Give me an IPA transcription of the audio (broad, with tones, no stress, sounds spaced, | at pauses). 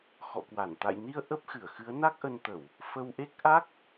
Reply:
x ɔ̰˧˨ k w a˧˩ n t̪ a̰˧˨ j n i˧ ə̯ ʔ ə˦˥ p̚ x ɨ˧˩ ə̯ x ɨ˨˦ ə̯ n a˦˥ k̚ ʔ ə˧ n t̪ ə˧˩˨ w | f ə˧ w ʔ e˦˥ k̚ ʔ a˦˥ k̚